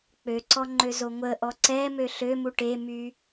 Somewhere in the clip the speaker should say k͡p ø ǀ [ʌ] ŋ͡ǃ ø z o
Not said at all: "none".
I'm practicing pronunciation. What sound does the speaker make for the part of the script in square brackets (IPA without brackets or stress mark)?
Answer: ɔ